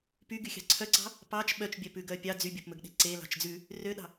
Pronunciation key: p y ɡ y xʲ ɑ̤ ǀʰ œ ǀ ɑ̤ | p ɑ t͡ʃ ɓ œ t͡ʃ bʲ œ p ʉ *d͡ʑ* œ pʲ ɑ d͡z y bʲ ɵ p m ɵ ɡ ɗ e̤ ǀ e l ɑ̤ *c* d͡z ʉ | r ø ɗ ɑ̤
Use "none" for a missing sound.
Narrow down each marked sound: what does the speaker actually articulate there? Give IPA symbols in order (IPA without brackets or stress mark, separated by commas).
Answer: ɡ, t͡ʃ